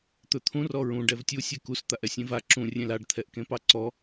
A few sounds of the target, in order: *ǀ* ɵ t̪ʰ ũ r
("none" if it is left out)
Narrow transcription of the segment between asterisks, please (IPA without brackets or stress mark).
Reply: t̪